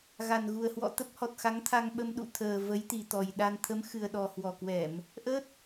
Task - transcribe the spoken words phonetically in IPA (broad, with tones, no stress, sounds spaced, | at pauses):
ɣ a˨˩ n ɣ u˨˩ ə̯ h w ɔ̰˧˨ t̪ ə˦˥ p̚ h ɔ˨˩ t̚ x a˨˦ ŋ t̪ʰ a˧ ŋ ɓ ə˧ m ɗ ṵ˧˨ t̪ʰ əː˨˩ v ə˨˦ j t̪ i˨˩ t̪ ɔ˨˩ j ɗ a˧ n t̪ʰ ə˨˦ m x ɨ˨˩ ə̯ ɗ ɔ˨˩ h w ɔ˨˩ k w ɛ˧˩˨ m | ʔ ə˦˥ t̚